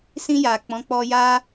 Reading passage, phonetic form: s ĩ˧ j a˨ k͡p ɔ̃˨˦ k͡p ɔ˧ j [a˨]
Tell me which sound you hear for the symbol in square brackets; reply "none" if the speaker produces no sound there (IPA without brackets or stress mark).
a˦